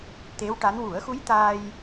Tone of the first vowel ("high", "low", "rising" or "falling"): rising